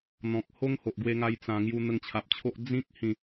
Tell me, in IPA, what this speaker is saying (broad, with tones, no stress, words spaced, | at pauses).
n̪ɔ̃˨k̚ ho˦ŋho˨ʔɡwe˧ŋa˧j t͡sã˧ ŋju˧n̪ə˧ŋt͡ɕʰa˨p̚t͡ɕʰo˦ʔ d͡zĩ˦k̚ hĩ˥˧